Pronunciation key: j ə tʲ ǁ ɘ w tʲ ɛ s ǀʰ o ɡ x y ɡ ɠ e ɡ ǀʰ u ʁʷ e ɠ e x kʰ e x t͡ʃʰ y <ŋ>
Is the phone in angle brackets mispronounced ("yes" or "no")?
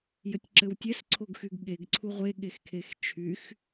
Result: yes